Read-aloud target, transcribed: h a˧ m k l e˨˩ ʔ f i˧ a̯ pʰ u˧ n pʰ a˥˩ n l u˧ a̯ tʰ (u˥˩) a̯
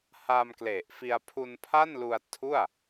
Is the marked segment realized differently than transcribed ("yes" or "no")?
no